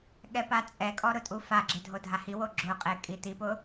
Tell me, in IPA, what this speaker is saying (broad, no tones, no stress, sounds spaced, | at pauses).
ɠ ɛ p a t͡sʼ ɛ kʼ ɔ ɾ ʊ tʼ u f a ɡ͡ǁ ɪ dʱ o dʱ a h i w o ɡ͡ǁ ʊ qʼ e kʼ i t̪ i p ʊ